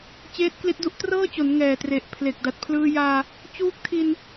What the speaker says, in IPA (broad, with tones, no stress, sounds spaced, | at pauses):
t͡ɕ eː˦˥ t̚ k l i˦˥ t̚ d u˦˥ ʔ t r ɤː˥˩ t͡ɕ o˩˦ n ŋ ɛː˨˩ t r e˨˩ ʔ pʰ l e˨˩ k̚ d a˨˩ t̚ pʰ l ɯː˧ j aː˧ | t͡ɕ uː˦˥ k̚ tʰ i˧ n